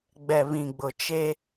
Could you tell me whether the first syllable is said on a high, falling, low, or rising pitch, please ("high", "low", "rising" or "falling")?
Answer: low